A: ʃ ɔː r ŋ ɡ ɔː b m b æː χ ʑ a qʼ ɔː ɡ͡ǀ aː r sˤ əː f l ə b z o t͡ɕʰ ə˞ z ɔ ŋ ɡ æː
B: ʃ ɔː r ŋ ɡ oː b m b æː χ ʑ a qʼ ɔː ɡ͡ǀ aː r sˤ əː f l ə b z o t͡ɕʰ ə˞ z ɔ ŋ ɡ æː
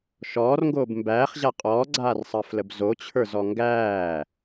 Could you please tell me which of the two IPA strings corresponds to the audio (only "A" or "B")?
B